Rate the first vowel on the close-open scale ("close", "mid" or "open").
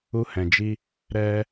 close